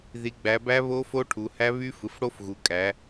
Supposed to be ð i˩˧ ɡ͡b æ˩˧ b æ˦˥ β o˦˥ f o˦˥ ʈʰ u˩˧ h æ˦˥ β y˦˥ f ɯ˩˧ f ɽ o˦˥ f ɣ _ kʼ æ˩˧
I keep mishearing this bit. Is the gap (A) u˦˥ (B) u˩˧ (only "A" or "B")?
B